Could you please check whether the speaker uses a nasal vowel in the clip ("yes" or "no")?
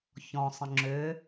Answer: yes